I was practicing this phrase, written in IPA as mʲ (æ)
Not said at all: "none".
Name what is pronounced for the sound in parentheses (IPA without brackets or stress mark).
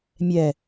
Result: ɛ